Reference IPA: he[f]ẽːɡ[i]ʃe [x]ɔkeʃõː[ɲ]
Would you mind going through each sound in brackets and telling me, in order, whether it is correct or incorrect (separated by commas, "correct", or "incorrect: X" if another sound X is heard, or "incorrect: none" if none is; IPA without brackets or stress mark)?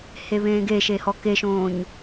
incorrect: β, incorrect: e, incorrect: h, correct